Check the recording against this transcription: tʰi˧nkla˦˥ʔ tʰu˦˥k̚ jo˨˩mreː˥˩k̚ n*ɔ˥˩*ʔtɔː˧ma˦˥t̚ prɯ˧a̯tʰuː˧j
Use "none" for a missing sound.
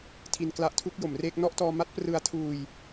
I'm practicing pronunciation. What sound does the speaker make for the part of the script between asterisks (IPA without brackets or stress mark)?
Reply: ɔ˥˩